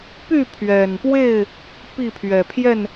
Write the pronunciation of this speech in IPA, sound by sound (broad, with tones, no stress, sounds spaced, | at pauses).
p y˥˨ pʰ ɥ ɛ˨˩ n p w e˥˨ ɪ̯ | p i˥˨ pʰ ɥ ɛ˨˩ pʰ j ɛ˥˨ n